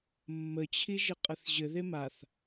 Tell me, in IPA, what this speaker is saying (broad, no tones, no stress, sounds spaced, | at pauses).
mː ə t͡ɕʰ i ʒ ɘ qʼ ɘ θ ʑ ɘ ð e m a θ